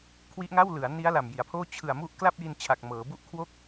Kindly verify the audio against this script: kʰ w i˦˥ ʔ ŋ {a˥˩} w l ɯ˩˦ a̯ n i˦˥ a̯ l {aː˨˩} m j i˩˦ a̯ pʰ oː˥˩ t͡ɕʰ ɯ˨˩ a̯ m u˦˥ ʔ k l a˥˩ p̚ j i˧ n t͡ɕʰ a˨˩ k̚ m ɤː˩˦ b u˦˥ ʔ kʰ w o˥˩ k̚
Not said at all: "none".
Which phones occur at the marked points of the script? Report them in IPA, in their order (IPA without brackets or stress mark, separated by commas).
a˥˩, a˨˩